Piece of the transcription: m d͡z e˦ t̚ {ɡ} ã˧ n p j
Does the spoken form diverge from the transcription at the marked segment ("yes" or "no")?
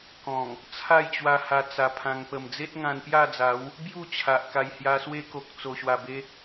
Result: yes